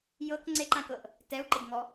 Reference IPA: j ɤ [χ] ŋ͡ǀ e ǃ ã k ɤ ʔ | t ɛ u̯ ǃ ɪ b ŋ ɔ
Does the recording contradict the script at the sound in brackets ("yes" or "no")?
yes